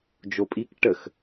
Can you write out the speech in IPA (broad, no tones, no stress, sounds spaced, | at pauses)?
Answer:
d͡ʒ o pʼ i k ʈ ə x